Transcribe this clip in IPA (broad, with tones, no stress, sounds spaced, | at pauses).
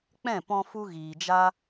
k͡p ɛ̃˦˨ p ɔ̃˧ f u˧ ɣ iː˨ d͡ʒ a˦